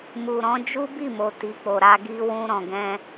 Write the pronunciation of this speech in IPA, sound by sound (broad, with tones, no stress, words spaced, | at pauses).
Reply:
mu˨ɾɔ̃˨˦ d͡ʒu˦bi˦˨mo˨ ti˨k͡po˨ɾa˧ ɡi˦ wũ˧ɾɔ̃˨ɡɛ̃˧